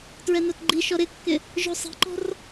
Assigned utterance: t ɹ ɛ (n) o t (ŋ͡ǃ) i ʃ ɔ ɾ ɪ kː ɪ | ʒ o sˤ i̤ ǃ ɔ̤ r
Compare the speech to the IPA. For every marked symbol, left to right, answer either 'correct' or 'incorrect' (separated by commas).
correct, incorrect